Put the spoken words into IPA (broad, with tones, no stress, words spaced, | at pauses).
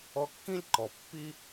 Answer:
ɔ˧kːĩ˦lʲǃɔ˨ pːi˦